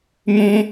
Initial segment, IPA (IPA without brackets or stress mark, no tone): m